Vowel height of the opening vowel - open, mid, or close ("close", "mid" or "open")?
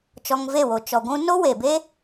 mid